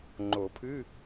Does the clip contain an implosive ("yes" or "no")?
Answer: no